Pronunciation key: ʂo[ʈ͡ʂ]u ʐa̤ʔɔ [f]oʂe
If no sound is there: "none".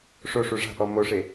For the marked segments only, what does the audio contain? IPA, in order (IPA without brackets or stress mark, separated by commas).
ʂ, m